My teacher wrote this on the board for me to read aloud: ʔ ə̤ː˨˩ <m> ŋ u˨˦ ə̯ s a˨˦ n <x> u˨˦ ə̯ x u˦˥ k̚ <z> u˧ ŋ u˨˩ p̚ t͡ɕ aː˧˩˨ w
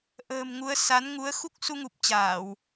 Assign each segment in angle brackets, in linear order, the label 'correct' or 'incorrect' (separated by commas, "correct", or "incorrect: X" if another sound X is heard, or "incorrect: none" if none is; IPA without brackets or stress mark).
correct, incorrect: ŋ, incorrect: s